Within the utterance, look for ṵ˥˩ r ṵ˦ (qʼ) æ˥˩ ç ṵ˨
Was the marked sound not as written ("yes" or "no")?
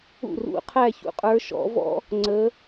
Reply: yes